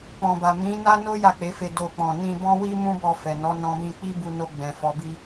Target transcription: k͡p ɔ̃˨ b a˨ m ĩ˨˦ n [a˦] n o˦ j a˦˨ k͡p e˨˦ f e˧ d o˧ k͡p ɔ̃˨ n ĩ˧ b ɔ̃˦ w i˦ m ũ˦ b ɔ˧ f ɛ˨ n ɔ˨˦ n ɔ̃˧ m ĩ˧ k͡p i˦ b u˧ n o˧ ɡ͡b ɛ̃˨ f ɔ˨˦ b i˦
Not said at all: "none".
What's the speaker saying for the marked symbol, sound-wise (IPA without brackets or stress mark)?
a˦